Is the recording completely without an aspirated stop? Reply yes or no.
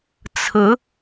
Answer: no